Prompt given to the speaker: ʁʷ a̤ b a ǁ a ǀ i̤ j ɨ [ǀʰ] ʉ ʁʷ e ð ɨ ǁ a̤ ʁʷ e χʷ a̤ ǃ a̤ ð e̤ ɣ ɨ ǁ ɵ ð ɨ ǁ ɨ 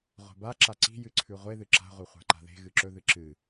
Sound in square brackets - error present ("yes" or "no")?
no